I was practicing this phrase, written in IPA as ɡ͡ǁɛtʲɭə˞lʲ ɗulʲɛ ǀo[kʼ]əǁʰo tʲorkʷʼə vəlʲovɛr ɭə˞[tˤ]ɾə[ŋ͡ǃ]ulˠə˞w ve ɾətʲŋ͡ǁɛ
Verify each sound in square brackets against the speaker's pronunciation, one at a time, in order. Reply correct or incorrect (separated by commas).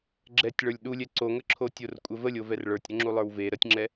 incorrect, incorrect, incorrect